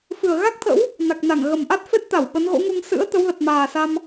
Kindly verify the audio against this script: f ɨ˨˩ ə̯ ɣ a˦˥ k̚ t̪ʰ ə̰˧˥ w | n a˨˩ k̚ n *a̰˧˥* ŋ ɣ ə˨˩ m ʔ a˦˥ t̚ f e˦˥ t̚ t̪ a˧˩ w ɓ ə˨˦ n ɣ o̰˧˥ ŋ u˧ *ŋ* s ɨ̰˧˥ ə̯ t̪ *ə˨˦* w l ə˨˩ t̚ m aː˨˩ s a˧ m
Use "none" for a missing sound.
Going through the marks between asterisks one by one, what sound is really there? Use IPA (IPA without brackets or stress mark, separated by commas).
a˧˩, ŋ, ə˨˦